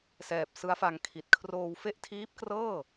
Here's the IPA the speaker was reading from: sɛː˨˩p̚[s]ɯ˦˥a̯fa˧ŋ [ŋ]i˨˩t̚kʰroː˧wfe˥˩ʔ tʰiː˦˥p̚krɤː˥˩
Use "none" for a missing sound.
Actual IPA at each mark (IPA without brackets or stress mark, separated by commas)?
s, kʰ